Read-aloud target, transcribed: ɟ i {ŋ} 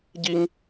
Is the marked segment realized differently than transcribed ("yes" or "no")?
no